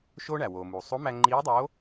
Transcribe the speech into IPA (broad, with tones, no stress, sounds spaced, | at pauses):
ʃ oː˥ ɳ æ˩ w oː˩ m uː˩ sˤ o˧˥ m æ˧ ŋ͡ǃ iː˧˥ dˤ oː˧˥